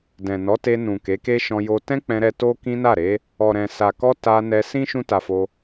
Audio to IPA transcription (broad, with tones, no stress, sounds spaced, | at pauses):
d ɛ̃˨ n ɔ˨˦ t e˧ n ũ˨ k e˨˦ k e˦ ʃ ɔ̃˧ j o˧ t ɛ̃˦ k͡p ɛ̃˧ ɾ ɛ˧ t o˦ k ĩ˦ n a˦˨ ɾ e˨˦ | ɔ˨ ɾ ɛ̃˨ s a˨ k ɔ˧ t a˧ n ɛ˧ s ĩ˦ ʃ ũ˦ t a˧ f o˧